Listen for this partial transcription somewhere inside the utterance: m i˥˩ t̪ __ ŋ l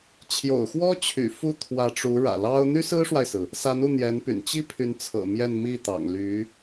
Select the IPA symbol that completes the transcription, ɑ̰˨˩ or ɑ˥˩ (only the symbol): ɑ̰˨˩